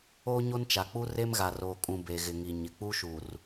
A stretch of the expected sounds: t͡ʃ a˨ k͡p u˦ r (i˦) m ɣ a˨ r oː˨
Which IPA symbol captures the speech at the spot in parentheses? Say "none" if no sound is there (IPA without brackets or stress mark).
e˦